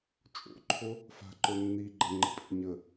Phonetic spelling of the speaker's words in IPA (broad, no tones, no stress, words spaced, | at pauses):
t͡ʃʼo̰ǃʰo | fa̤ǃɵ nːiɡ͡ǃəŋ͡ǃə̤ pʼḭɲə